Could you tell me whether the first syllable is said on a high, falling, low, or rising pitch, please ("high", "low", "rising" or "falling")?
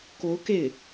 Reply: rising